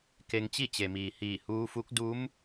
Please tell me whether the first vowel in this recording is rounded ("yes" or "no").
no